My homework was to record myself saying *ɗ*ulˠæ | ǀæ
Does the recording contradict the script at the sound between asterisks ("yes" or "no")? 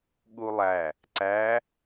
yes